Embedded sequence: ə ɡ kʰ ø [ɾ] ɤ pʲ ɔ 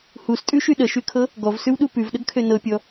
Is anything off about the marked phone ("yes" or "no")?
yes